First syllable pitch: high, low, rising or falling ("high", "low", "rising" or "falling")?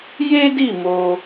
high